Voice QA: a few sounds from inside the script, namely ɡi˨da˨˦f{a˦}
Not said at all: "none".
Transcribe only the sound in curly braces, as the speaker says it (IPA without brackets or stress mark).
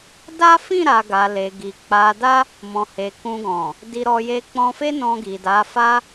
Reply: a˦